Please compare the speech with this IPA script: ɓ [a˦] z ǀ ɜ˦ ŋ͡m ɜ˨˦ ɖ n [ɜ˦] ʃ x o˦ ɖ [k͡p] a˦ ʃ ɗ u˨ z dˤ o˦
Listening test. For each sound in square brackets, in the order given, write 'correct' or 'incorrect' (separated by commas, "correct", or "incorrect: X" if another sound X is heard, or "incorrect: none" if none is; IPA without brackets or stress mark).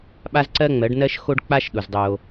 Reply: correct, correct, correct